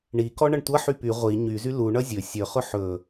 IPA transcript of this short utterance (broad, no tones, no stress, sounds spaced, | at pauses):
ɳ i k ɔ ɳ ʌ ɳ tʷ ʌ ħ y p y ʁʷ i ɲ y z y l u ɳ ʌ zʲ ɵ sʲ ɵ χ ʊ ħ ɵ